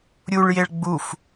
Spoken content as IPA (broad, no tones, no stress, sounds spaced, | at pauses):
ɾʲ u ɭ j e ɭ ɡ͡b u f